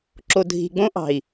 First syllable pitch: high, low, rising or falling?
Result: low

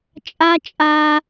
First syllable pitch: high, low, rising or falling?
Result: high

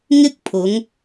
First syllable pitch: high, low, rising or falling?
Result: high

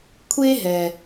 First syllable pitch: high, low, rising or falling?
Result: high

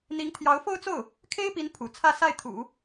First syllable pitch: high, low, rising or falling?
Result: rising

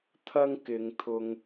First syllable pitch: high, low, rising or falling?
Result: high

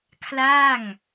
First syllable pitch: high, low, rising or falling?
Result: falling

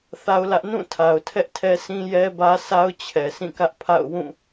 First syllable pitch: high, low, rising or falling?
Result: high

